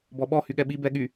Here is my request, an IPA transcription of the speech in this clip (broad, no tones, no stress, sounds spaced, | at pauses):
b ɔ ɓ ɔ h y ɠ ɛ ɓ i b ɛ ɠ y